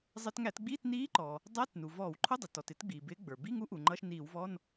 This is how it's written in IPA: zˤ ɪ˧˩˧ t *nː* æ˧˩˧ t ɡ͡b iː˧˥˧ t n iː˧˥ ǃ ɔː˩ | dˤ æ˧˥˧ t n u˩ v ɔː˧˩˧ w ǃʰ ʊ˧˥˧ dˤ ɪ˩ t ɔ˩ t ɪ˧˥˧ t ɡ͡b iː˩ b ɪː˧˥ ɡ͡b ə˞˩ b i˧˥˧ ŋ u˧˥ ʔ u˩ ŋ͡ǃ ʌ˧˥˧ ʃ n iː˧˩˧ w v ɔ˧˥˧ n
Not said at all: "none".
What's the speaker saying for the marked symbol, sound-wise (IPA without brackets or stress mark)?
ŋ